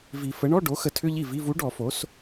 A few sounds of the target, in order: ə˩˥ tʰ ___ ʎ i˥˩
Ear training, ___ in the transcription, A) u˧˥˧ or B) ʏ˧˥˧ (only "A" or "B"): B